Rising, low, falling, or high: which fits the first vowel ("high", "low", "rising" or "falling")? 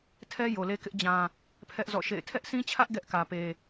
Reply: high